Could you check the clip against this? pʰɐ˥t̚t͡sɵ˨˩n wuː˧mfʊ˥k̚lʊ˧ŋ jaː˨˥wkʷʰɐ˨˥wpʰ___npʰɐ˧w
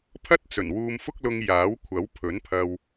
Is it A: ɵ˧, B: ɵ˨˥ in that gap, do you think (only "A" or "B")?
B